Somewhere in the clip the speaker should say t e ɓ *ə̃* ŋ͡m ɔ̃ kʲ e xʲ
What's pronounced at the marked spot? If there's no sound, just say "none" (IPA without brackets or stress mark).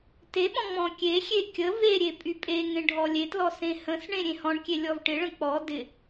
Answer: ɔ̃